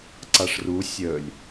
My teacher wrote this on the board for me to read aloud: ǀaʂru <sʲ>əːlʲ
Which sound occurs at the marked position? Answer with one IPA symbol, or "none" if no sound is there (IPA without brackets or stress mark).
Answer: sʲ